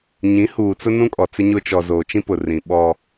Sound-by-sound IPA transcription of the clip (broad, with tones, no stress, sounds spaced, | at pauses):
ɲ ĩ˨˦ h uː˨ t͡s ʊ˦ n ũ˦ kʼ ɔ˨ t͡s ɪ˦ ɲ ʊ˦ t͡ʃ ɔ˨ z oː˨ t͡ʃ ĩ˦ p ʊ˨ r ĩ˨ ɓ ɔ˦